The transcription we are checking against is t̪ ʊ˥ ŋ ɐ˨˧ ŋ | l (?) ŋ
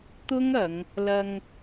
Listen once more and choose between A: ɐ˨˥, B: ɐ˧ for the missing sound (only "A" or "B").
B